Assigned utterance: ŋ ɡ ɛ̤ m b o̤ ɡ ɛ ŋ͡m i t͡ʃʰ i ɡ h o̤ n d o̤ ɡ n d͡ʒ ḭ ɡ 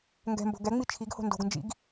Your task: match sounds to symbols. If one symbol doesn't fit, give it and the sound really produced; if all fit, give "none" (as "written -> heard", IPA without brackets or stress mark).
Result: none